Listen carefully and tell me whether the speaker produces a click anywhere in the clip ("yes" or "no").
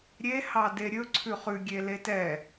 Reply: yes